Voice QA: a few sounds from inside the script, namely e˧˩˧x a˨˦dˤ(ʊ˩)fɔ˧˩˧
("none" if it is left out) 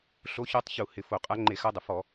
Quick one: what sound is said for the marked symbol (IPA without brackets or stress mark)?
ʊ˩